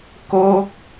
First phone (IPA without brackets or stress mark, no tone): k